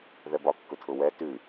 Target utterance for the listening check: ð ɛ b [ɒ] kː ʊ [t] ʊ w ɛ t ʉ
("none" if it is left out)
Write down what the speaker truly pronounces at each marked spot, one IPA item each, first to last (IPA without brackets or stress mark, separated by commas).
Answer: ɒ, tʰ